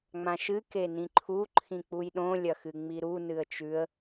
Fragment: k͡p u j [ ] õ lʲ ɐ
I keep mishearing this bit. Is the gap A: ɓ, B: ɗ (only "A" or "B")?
B